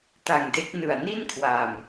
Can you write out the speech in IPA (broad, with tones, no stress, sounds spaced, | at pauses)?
t a˨˩ ŋ d e˦˥ k̚ n ɯ˨˩ a̯ n i˥˩ n kʰ w a˨˩ m